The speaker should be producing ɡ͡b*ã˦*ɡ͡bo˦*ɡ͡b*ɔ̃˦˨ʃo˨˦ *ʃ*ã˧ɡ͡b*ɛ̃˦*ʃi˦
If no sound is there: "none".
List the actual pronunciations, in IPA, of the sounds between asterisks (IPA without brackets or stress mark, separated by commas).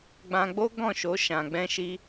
ã˧, ɡ, ʃ, ɛ̃˦